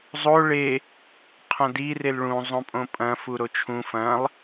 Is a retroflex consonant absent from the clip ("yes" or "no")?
no